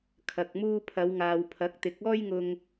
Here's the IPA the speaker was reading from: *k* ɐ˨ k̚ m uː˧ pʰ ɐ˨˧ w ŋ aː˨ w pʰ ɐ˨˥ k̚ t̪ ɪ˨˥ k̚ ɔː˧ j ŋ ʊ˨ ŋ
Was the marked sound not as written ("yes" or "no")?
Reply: yes